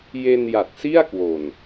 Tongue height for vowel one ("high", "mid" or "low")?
mid